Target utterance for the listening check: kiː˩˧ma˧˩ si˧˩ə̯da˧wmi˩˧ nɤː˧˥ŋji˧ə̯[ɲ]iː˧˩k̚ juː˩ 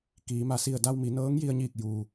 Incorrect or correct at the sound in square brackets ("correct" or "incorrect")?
correct